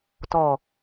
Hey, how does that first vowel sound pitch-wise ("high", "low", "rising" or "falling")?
low